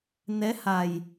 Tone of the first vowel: rising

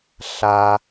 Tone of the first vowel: low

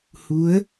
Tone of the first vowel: rising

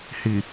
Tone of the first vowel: low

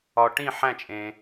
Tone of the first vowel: low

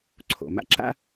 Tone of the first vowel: low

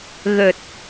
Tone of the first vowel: low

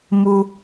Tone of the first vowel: high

